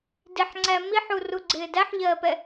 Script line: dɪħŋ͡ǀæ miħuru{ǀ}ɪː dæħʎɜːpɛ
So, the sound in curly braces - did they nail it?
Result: no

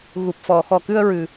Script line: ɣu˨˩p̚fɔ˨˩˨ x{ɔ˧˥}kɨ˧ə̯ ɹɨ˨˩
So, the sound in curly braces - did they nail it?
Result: no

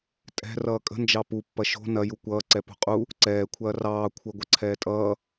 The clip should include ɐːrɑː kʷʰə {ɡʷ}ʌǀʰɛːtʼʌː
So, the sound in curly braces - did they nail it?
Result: yes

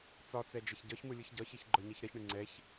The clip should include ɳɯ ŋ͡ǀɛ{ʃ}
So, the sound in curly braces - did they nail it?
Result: no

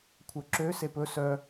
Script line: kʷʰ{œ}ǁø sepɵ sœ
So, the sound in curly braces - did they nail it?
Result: yes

